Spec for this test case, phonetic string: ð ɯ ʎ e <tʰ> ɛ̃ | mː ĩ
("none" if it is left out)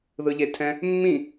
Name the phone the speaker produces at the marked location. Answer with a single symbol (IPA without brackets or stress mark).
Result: tʰ